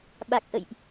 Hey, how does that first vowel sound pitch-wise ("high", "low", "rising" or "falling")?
low